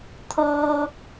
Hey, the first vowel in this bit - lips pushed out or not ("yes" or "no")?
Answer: yes